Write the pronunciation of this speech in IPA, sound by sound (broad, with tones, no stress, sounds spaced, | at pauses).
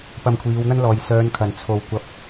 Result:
p ɐ˧ m kʷʰ iː˨˧ w n̪ ɐ˥ n l ɔː˨ j s œː˨˧ n kʰ ɐ˨˩ n t͡sʰ o˨˩ w kʷ ɐ˨ p̚